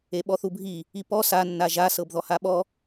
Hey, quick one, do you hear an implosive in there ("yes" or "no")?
yes